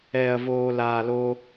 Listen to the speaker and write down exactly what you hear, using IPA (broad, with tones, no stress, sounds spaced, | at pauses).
ɛː˧ ɐ̯ v oː˧ l aː˧ l o˦